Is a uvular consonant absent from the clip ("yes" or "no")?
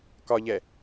yes